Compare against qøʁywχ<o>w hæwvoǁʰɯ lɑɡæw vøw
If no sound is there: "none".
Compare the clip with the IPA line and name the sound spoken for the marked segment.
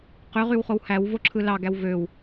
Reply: o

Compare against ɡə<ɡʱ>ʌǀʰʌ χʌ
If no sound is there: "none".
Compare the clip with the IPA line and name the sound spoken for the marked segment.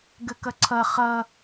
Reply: k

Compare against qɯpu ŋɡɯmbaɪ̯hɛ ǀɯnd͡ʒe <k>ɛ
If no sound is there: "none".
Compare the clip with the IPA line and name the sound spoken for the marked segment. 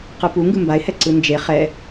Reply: χ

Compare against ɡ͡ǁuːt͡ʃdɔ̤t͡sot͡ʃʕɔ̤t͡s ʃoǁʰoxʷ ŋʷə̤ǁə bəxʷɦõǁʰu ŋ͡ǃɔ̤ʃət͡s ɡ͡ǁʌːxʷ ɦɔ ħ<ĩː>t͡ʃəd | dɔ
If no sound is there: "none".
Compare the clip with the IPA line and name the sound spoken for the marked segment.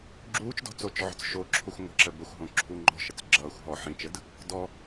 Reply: ĩ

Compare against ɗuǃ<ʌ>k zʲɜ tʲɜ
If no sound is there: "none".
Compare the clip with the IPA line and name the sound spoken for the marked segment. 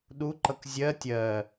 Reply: ʌ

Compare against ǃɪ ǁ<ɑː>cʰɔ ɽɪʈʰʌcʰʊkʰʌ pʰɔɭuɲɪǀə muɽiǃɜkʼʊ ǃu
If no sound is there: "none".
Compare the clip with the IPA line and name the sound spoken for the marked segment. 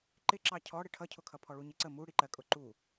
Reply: ɑ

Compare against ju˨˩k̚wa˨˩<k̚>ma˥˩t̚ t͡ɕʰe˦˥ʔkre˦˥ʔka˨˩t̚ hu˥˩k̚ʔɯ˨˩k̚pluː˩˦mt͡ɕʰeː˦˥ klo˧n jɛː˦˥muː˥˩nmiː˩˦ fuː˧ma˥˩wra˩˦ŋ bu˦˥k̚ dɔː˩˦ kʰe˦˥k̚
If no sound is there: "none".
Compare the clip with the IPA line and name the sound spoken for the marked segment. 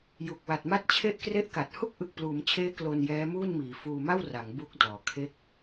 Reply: t̚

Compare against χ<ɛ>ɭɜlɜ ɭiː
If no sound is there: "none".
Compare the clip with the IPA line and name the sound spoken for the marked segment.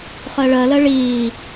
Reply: ɜ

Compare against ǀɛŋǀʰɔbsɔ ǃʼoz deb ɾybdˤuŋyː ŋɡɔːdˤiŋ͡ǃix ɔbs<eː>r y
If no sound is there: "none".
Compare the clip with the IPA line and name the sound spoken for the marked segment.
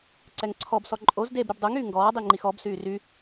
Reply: yː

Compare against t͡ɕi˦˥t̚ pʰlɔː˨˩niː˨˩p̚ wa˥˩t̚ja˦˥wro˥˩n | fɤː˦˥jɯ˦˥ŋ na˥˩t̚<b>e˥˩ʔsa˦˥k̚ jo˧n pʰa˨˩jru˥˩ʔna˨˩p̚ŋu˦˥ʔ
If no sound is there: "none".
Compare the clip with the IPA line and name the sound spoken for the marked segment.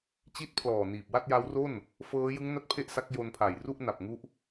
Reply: pʰ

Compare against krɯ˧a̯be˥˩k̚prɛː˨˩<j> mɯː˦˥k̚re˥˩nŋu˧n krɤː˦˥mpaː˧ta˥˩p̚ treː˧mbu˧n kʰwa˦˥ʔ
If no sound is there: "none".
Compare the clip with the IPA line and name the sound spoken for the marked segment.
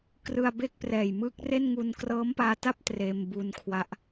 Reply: j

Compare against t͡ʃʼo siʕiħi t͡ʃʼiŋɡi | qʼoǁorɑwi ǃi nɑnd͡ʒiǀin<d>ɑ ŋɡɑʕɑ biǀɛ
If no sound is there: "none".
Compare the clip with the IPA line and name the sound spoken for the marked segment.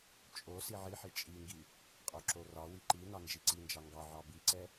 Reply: d͡ʒ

